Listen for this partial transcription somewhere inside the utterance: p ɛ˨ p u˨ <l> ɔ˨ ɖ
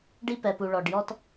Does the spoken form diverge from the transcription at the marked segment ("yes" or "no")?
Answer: yes